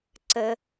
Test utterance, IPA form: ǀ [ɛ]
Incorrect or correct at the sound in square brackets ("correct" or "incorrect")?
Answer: incorrect